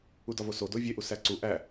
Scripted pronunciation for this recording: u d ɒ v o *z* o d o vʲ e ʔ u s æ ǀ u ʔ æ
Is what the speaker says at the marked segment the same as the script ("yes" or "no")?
no